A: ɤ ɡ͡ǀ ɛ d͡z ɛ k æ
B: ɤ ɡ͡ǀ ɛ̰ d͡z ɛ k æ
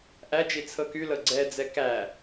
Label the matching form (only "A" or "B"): A